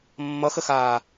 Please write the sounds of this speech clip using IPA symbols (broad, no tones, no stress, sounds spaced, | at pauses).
mː ʌ x ə x aː